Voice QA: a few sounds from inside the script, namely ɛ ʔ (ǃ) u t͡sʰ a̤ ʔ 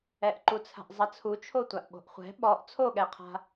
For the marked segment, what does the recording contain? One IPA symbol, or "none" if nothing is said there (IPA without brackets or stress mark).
ǃ